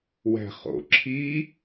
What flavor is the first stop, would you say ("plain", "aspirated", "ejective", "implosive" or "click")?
click